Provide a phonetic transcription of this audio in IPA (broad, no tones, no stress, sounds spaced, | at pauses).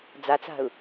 d͡z a t͡s a̤ ʊ̯